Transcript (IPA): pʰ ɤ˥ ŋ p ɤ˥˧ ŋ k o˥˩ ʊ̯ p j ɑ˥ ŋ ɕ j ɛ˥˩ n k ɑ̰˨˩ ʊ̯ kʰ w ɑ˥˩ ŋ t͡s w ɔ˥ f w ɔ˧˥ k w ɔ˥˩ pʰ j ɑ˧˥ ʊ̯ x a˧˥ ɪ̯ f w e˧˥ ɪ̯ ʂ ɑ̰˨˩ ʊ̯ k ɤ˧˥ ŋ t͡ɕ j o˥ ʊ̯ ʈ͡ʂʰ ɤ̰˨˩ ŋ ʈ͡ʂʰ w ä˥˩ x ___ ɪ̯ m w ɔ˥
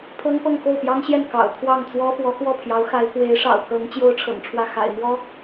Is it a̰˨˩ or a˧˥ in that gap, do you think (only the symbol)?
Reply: a̰˨˩